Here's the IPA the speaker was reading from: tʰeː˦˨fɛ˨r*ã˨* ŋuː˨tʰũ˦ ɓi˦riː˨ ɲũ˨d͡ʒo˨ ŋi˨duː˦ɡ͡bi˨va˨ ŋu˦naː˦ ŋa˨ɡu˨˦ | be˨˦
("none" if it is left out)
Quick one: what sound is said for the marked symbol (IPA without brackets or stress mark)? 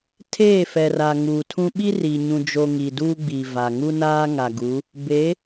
a˨